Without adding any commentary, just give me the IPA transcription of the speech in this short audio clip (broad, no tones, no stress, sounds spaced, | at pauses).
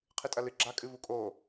qʰ ɨ tʼ ɐ l ɨ ɡ͡ǁ a kʼ ɨ v u kʼ o